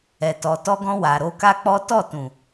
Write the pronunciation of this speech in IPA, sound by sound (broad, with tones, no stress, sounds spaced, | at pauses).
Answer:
ɛ˨ t ɔ˨ t ɔ˧ ɡ ɔ̃˧ w a˨ ɾ o˧ k a˦ k͡p ɔ˦ t ɔ˦˨ t ũ˨